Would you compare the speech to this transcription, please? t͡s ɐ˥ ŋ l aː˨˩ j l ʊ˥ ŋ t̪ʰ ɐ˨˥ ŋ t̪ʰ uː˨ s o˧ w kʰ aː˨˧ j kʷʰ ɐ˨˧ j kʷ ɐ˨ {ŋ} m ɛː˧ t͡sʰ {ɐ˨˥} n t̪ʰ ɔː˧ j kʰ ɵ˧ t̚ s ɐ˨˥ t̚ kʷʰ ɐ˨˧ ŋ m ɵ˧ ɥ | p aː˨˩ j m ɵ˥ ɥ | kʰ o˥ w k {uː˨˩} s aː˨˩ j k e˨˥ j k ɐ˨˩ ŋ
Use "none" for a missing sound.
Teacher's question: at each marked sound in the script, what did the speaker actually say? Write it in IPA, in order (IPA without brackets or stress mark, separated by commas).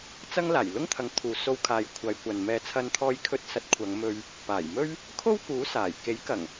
n, ɐ˧, uː˨˥